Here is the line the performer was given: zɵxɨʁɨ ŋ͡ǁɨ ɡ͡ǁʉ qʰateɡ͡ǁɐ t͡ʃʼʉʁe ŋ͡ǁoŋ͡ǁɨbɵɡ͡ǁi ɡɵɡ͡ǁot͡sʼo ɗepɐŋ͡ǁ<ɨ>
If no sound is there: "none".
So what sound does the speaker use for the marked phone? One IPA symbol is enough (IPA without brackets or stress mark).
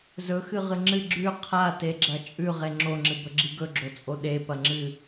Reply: ɨ